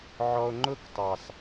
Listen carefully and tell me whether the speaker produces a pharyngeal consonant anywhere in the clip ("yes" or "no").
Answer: yes